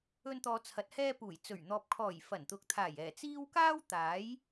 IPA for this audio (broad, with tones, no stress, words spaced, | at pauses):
ɵ˧nt̪ɔː˨ t͡sʰɐ˨t̚hɛː˧ puː˨˩jt͡sɵ˨˩ɥ n̪ɔː˨p̚kʰɔː˨˩j fɐ˨˩nt̪ʊ˨k̚t̪ʰaː˨˩j ɛː˨˩t͡siː˥w kaː˥w t̪aː˨˥j